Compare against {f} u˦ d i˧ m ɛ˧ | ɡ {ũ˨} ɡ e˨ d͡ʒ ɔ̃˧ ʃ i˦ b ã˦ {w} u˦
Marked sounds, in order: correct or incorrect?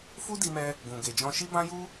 correct, correct, incorrect: j

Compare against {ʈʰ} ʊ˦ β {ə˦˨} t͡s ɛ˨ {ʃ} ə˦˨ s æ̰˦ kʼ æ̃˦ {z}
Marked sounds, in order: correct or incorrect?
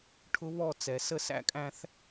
correct, incorrect: ɔ˦˨, incorrect: s, incorrect: θ

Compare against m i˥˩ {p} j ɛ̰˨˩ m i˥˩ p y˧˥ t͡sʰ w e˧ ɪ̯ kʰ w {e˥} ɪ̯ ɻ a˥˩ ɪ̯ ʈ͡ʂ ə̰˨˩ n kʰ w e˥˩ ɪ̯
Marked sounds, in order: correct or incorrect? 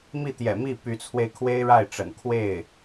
incorrect: t̪, correct

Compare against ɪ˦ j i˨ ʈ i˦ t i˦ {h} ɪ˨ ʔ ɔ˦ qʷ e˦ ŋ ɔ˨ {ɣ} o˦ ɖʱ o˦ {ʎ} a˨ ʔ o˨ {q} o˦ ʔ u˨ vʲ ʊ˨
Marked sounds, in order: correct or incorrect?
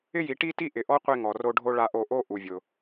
incorrect: ʔ, incorrect: r, incorrect: ɭ, incorrect: ʔ

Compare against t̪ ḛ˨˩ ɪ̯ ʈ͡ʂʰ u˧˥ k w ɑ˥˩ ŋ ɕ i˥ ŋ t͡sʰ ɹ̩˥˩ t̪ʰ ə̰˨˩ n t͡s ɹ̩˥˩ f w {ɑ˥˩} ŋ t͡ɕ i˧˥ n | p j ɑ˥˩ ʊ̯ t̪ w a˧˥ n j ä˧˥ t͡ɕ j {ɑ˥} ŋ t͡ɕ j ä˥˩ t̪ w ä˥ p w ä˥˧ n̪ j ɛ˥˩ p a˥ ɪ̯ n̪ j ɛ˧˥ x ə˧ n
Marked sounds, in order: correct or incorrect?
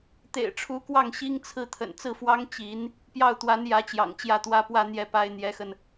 incorrect: ɑ˥, incorrect: ɑ̰˨˩

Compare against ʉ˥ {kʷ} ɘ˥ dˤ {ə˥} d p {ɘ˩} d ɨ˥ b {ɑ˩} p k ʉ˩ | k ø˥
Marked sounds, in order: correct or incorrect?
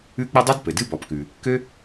incorrect: k͡p, incorrect: ɨ˥, correct, incorrect: ɔ˩

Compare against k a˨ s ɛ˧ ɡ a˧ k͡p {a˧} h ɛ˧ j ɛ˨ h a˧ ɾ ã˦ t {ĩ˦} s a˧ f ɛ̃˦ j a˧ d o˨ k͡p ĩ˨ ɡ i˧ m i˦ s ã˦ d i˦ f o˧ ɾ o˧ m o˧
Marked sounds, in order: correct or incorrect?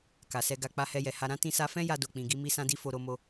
correct, incorrect: ĩ˧

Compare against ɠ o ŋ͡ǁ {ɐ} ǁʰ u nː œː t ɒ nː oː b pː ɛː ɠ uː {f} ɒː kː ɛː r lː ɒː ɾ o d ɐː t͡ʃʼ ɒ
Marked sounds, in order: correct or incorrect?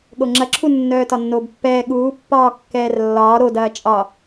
correct, incorrect: pː

